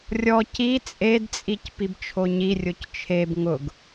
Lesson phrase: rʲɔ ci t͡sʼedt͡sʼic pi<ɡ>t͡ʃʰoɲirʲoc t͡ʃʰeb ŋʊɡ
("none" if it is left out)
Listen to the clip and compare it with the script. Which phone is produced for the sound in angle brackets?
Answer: b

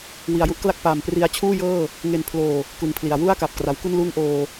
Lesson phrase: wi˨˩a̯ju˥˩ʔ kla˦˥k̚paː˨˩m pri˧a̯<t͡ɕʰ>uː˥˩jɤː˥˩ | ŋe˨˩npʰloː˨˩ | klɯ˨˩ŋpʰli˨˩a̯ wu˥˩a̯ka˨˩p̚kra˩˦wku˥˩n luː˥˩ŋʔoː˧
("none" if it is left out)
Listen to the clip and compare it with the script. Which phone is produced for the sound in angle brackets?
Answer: t͡ɕʰ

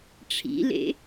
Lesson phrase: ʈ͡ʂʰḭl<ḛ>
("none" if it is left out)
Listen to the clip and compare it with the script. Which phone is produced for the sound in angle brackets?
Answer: ḛ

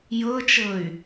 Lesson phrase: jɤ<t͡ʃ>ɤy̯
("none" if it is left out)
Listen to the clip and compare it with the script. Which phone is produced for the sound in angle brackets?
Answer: t͡ʃ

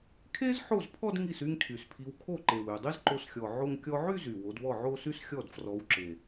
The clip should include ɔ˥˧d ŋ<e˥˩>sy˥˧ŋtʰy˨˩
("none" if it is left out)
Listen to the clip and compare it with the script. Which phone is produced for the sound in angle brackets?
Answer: i˥˩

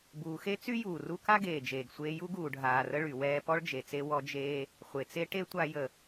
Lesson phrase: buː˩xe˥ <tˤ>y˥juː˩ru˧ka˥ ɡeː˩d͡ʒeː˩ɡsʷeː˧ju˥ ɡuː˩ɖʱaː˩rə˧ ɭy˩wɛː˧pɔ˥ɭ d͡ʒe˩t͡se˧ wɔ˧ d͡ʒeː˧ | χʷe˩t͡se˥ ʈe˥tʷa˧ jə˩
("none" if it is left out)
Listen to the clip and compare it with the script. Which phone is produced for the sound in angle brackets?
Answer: t͡s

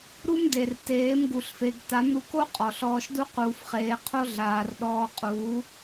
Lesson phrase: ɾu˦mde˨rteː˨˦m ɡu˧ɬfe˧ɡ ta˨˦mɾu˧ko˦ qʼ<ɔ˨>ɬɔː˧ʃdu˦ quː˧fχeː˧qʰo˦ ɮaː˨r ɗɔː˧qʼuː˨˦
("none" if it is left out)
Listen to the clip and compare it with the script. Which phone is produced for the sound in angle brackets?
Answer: ɔ˨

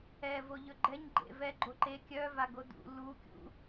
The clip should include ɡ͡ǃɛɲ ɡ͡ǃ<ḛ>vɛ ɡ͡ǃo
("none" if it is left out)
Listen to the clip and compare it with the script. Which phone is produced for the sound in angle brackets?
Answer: ḛ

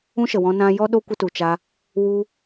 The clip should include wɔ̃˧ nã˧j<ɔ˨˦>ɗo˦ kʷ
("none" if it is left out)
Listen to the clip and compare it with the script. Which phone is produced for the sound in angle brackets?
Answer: ɔ˦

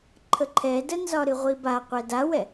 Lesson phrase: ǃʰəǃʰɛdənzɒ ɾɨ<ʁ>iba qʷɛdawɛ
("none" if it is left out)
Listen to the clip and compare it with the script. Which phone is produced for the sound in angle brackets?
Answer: ʁʷ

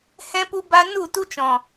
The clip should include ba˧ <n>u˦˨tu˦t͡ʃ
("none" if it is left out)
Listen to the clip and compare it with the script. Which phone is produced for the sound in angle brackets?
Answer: n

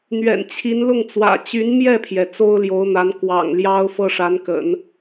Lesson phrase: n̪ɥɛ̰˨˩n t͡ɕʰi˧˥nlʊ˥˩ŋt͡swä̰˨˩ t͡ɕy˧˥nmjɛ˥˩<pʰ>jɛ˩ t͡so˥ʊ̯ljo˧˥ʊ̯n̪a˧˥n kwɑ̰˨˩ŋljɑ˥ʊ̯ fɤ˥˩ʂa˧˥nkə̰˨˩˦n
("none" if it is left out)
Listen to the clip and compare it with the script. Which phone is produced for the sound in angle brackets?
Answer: pʰ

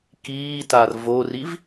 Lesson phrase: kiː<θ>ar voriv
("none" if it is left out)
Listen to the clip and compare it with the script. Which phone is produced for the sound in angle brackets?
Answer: t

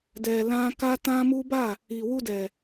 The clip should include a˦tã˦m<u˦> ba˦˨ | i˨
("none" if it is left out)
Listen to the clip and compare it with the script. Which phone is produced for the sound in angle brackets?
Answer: u˦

